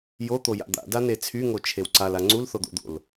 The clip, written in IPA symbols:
j o t̪ o j a̰ d̪ a̰ d a n e t͡sʰ y ŋ o t͡ʃʰ e w ǀ a l a ŋ͡ǀ u l θ o d̪ o̰ d̪ o̰ l

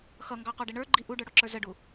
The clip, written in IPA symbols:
x ʌ ŋ ɡ ɑ q ɔ ɖ ɪ ɳ ə˞ ɡ͡ǃ i ʔ u ɖ ə˞ ɽ ɔ ǁ ə˞ z ə ɖ u

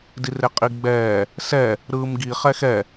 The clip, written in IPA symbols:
d i r e qʼ i ɡ͡b ɛː | s ɛ | ɾ ɯː m ɡ i χ ɛ x ɛ

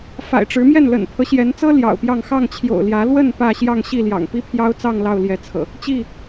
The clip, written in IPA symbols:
f a̰˨˩ ɪ̯ ʈ͡ʂ ɻ̩˨˦ m j ɛ˥˨ n l ə̰˨˩ n pʰ ɤ˦ ɕ j ɛ˨˦ n t͡s ɤ˦ l j ɑ̰˨˩ ʊ̯ p j ɑ˥˨ ŋ x ɑ˥˨ ŋ t͡ɕʰ j o̰˨˩ ʊ̯ l j ä˨˦ l w ə˥˨ n p ä˥˨ ɕ j ɑ˥˨ ŋ ɕ i˥˨ l j ɑ̰˨˩ ŋ p i˦ pʰ j ɑ˦ ʊ̯ t͡s ɑ˥˨ ŋ l ɑ˥˨ ʊ̯ l j ɛ˨˦ t͡sʰ ɤ̰˨˩ | t͡ɕ i˥˨

